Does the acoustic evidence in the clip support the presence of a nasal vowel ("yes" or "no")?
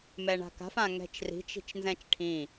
yes